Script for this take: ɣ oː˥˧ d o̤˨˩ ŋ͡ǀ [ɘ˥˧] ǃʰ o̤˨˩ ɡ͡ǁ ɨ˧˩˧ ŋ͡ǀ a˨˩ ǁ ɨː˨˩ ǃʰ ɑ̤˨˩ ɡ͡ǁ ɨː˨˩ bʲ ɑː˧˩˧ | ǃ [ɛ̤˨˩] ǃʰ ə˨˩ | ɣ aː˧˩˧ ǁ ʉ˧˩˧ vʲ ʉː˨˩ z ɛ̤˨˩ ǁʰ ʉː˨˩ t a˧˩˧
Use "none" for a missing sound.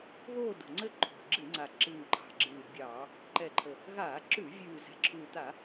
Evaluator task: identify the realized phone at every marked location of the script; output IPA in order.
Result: ɘ˥˧, ɛ˨˩

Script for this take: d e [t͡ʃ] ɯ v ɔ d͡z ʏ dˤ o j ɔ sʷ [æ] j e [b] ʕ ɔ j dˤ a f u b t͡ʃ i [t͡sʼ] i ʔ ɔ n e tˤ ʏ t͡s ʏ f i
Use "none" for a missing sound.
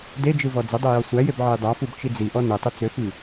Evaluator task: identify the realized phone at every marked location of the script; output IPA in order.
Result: d͡ʒ, æ, b, d͡z

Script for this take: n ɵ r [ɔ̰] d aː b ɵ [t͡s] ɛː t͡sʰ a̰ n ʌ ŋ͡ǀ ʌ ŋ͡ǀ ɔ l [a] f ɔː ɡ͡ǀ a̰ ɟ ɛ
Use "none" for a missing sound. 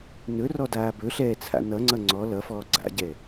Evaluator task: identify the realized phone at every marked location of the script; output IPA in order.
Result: ɔ, ɬ, ʌ

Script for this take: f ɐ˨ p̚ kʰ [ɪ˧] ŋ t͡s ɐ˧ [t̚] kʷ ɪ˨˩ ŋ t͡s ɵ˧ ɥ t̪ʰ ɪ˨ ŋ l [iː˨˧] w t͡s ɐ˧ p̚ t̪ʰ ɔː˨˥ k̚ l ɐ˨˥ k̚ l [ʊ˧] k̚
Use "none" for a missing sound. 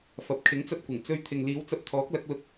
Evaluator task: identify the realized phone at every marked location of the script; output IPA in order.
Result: ɪ˨˥, t̚, iː˨˧, ʊ˧

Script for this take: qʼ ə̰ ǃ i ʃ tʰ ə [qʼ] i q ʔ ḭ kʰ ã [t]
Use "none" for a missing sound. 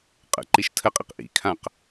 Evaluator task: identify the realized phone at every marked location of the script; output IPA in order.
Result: qʼ, q

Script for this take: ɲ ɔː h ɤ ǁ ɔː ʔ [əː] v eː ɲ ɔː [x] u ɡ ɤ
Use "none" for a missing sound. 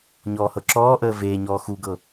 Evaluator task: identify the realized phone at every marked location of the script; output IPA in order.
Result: əː, x

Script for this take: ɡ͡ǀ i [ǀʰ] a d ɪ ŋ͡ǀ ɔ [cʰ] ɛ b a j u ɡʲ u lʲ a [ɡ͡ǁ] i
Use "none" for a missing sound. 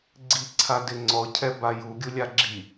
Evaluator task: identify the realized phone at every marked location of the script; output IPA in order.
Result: ǀʰ, cʰ, ɡ͡ǁ

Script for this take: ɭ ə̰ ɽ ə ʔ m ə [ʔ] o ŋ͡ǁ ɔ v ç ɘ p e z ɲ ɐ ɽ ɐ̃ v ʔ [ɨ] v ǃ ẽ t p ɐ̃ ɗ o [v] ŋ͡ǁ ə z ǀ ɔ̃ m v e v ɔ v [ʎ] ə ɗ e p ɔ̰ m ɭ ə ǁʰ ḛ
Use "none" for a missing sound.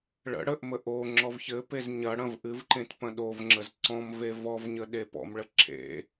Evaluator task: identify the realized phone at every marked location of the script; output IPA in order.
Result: ʔ, ɨ, v, ɲ

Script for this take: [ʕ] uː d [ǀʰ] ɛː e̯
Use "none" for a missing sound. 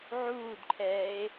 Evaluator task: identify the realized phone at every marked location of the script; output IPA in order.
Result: ʕ, ǃʰ

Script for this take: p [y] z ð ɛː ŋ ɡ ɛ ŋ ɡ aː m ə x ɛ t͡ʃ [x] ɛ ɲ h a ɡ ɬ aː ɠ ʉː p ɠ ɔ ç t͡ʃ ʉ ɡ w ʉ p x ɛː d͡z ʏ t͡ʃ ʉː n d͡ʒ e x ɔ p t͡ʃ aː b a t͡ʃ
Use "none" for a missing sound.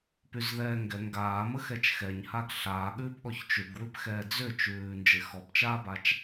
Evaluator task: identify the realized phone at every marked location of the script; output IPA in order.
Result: y, x

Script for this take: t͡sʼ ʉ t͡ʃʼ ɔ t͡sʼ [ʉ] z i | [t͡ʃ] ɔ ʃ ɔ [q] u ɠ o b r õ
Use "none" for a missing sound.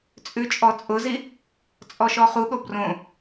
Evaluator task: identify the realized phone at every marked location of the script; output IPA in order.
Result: ʊ, t͡sʼ, χ

